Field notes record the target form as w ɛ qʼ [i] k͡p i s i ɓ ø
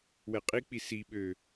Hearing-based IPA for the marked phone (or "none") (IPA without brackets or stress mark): i